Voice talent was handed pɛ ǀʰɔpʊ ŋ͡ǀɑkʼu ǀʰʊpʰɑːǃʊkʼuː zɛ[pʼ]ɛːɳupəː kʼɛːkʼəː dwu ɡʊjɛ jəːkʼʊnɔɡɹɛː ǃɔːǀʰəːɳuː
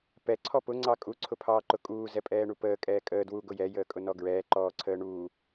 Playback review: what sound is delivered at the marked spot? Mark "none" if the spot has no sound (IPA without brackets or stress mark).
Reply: pʼ